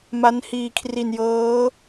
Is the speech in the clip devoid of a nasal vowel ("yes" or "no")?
yes